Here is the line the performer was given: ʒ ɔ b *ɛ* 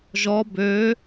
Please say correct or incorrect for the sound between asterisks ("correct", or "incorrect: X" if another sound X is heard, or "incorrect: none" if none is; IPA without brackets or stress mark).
incorrect: ø